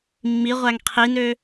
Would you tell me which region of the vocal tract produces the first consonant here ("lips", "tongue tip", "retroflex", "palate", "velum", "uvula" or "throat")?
lips